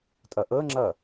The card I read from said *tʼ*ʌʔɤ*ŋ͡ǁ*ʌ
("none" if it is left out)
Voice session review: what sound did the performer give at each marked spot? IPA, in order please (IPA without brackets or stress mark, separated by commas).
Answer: tʼ, ŋ͡ǁ